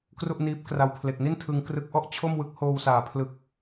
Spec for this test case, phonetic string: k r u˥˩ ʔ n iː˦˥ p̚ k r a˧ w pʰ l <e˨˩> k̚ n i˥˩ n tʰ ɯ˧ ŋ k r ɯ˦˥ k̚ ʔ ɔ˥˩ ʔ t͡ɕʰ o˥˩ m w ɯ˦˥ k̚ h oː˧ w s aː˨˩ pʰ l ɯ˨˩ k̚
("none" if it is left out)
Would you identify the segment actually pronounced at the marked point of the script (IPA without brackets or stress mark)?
e˨˩